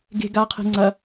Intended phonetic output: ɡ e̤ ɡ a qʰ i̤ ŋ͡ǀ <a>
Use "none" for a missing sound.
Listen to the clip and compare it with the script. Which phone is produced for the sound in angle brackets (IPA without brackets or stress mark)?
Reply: ɐ